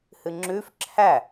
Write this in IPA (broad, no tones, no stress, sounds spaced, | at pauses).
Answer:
h ɨ ŋ͡ǁ ʉ f ǁʰ æ